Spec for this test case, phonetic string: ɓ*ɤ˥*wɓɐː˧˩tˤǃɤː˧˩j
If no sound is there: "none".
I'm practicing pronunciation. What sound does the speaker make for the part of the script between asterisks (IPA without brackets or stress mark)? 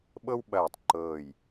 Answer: ɤ˥